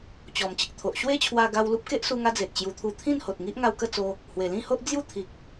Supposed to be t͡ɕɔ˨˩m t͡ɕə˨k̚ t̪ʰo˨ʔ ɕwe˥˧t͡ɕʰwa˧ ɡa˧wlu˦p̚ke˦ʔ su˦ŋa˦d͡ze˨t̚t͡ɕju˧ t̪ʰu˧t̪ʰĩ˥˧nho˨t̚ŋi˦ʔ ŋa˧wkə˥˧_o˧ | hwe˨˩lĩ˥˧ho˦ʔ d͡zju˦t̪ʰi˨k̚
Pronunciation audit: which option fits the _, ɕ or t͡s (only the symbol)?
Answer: t͡s